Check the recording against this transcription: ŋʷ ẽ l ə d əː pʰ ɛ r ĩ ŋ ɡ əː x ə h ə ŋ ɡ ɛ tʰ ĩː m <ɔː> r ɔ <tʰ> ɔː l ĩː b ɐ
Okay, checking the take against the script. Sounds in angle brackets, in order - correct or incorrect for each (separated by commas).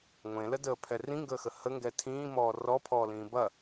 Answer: correct, incorrect